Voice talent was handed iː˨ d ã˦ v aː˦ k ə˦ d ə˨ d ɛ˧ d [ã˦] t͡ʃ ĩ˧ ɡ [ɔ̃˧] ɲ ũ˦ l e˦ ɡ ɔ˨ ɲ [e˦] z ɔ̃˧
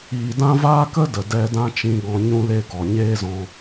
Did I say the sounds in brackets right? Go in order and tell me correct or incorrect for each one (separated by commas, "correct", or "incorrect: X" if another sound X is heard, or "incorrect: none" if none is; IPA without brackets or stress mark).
correct, correct, incorrect: eː˦